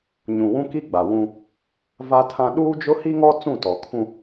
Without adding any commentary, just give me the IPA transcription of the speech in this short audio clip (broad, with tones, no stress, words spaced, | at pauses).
ɲũ˨wũ˦ki˦ɡ͡ba˨ wũ˦ | va˦tʰã˦ ɗuː˦d͡ʒʊ˦hi˦ŋɔ˦ t͡sũ˦˨tɔ˨kʰũ˦